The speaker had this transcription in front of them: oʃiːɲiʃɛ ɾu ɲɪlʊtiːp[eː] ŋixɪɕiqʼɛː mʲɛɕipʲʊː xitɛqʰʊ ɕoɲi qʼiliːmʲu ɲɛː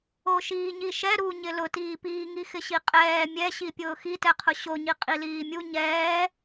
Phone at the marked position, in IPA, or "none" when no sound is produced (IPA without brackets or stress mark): iː